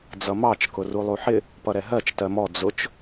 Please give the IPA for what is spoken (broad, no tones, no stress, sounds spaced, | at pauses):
d͡z ʌ m ɑ t͡ʃ k ʊ r u lˠ u ħ ɪ | p ʌ ɾ ɛ ɦ ɜ t͡ʃ t ɜ m ɔ d͡z ʊ t͡ʃ